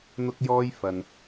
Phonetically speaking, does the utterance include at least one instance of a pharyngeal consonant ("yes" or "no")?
no